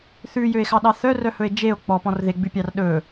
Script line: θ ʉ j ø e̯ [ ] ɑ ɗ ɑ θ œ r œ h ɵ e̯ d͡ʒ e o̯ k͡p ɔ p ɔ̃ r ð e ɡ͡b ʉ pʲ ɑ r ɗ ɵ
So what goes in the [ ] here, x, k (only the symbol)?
x